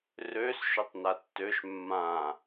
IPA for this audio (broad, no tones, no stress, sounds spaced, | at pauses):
r ø s ʃ ø tˤ n a tː ø ʃ mː ã